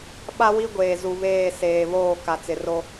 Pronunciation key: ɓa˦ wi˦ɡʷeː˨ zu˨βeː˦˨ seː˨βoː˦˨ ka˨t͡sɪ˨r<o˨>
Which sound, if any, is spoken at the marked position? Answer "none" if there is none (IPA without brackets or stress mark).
o˦